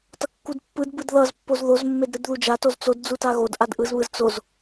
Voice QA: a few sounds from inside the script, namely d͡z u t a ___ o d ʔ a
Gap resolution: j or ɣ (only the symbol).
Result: ɣ